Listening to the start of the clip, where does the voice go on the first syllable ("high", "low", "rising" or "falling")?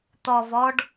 high